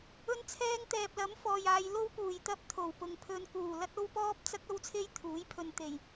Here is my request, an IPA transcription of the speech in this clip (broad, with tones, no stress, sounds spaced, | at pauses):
ɵ˧ n t͡sʰ ɛː˧ ŋ t̪ ɛː˨ p̚ l ɐ˨˥ m f ɔː˨ j aː˨˧ j l o˥ w p uː˨˩ j t̪ ɐ˥ p̚ t̪ʰ o˨˩ w p ʊ˨ ŋ pʰ ɵ˧ n k uː˨˩ l ɐ˥ t̚ o˥ w p ɔː˥ p̚ t͡s ɐ˥ k̚ ɐ˥ w t͡sʰ e˥ j t̪ʰ uː˨˥ j pʰ ɵ˧ n t̪ e˨˩ j